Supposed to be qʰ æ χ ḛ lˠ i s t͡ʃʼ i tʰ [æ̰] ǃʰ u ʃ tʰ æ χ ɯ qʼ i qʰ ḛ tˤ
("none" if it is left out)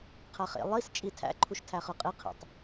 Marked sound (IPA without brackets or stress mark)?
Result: æ̰